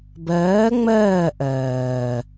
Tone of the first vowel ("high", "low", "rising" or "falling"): rising